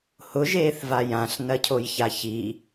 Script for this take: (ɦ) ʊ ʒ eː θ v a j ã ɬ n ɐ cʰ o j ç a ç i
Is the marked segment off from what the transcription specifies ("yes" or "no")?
yes